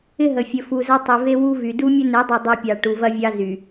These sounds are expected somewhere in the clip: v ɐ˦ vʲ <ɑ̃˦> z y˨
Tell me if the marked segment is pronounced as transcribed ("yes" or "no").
no